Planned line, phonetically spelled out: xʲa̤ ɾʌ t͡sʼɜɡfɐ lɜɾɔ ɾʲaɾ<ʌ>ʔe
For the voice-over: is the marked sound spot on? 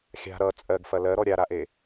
no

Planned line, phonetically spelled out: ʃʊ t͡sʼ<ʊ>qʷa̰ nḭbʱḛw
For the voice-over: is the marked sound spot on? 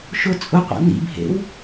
yes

